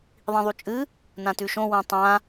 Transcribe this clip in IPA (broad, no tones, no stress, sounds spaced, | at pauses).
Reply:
ðˤ ĩ ðˤ u t͡ʃʼ ɨ | n ã t ʉ ʃ õ w ũ tˤ ã